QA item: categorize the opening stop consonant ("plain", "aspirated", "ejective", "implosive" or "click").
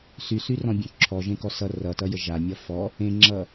plain